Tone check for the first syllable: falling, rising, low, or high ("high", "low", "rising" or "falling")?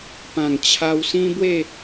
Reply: low